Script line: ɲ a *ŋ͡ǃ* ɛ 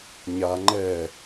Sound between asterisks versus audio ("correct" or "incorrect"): correct